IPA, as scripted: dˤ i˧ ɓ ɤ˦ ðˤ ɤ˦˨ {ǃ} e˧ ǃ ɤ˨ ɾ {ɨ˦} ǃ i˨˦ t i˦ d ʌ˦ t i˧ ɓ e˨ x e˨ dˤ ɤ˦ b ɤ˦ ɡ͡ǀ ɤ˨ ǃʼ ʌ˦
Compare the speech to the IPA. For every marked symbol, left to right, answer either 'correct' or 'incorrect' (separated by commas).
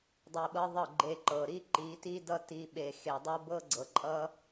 incorrect, incorrect